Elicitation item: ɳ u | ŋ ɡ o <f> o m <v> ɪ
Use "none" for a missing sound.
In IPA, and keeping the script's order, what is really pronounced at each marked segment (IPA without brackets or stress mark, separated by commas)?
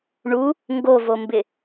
v, b